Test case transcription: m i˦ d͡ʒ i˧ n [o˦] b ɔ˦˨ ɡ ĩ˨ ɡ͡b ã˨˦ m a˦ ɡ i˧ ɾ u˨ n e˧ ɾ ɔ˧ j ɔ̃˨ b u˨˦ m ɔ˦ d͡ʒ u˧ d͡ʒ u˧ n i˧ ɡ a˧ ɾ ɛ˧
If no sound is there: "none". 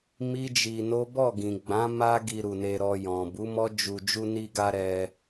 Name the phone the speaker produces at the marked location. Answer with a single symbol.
o˦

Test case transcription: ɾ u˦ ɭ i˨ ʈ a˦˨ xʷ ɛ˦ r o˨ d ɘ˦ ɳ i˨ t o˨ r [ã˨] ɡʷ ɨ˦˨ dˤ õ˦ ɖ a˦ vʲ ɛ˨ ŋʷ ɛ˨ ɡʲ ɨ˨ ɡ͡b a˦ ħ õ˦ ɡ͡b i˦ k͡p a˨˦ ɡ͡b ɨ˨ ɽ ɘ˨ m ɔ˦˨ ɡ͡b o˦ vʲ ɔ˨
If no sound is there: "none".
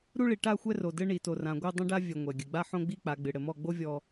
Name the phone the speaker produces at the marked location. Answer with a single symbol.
ã˨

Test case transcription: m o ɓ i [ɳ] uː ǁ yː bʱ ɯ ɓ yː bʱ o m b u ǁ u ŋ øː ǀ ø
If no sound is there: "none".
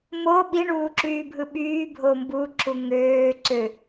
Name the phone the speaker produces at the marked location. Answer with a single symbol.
ɳ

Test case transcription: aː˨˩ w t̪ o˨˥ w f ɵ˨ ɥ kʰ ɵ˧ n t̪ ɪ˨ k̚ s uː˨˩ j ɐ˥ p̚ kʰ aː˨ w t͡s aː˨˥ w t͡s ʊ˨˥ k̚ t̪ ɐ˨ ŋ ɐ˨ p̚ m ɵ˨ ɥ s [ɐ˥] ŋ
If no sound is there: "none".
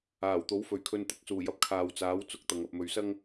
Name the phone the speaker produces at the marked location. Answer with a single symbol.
ɐ˥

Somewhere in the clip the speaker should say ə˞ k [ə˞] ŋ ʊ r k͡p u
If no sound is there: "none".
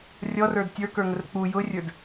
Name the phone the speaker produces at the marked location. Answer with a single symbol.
ə˞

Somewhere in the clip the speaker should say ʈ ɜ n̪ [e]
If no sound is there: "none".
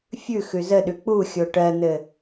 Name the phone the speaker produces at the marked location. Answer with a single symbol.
ɘ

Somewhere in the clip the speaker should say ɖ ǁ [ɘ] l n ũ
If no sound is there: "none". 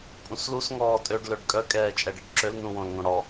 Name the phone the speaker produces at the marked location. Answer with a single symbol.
ø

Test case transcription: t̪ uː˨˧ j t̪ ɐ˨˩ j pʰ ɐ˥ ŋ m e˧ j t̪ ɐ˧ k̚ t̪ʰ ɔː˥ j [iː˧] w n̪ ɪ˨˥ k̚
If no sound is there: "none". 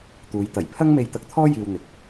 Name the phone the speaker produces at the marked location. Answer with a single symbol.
iː˧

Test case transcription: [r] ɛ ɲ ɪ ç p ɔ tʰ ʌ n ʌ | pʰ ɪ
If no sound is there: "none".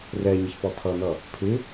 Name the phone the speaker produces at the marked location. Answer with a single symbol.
r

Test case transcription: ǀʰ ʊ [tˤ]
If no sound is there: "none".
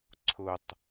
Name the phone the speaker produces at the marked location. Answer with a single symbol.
tˤ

